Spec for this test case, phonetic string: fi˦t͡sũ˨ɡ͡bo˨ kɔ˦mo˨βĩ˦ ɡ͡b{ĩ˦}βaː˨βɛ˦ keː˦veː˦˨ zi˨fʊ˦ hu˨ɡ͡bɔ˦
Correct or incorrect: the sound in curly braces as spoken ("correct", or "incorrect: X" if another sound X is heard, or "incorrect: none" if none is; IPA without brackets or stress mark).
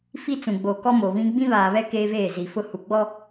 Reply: correct